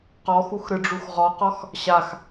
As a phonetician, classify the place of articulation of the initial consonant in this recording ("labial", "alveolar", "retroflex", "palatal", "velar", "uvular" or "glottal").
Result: uvular